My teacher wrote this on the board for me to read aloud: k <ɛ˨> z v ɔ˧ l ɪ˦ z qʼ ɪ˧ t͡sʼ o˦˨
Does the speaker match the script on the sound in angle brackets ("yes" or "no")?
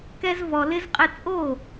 no